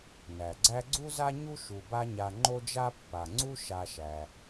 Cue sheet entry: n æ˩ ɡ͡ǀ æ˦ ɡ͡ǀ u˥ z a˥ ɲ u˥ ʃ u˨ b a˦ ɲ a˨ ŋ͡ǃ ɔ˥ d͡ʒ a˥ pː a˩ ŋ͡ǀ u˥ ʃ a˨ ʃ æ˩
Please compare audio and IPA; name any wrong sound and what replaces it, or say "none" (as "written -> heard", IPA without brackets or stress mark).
ɔ˥ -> o˥